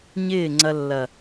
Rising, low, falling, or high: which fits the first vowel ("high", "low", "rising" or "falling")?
falling